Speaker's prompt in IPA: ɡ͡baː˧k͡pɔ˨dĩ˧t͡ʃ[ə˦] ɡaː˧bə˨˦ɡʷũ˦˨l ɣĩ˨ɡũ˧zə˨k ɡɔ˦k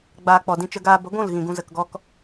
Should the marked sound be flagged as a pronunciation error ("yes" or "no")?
no